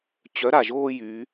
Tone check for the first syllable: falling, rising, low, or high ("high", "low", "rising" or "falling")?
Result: rising